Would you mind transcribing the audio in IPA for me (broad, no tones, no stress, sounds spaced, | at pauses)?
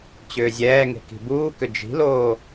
t͡ɕ ʏː zʲ ɛː ŋ e̤ k i̤ b uː k ʏ d͡ʒ i̤ l oː